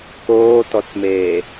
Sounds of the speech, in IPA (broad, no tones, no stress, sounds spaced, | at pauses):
k oː t ɔ t͡s m eː